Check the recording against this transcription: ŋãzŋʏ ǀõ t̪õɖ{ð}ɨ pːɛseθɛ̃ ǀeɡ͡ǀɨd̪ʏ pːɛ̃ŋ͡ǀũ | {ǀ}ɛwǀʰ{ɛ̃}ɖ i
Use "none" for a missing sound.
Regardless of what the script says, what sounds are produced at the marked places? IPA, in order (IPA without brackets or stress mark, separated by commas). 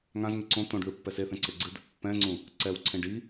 ð, ǀ, ẽ